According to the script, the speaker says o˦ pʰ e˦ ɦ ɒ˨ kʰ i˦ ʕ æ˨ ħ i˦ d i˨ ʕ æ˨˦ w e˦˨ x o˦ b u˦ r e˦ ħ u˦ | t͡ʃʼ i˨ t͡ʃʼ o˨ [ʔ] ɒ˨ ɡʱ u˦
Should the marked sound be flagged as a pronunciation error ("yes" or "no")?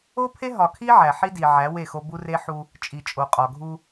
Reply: yes